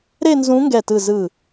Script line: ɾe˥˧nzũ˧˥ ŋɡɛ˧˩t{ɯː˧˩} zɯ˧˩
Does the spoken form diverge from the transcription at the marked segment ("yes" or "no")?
yes